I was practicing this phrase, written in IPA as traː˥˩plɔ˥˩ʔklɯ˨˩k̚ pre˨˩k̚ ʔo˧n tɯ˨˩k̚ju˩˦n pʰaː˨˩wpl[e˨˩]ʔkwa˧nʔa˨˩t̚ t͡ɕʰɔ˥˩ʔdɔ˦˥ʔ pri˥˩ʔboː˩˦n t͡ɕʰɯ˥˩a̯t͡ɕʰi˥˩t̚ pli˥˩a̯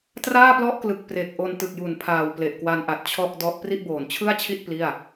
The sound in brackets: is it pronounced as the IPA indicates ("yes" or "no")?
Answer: yes